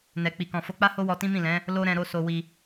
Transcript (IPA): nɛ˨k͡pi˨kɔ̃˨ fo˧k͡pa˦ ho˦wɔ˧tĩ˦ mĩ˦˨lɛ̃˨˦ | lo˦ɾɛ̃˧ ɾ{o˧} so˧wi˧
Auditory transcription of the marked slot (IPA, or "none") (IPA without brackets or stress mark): o˧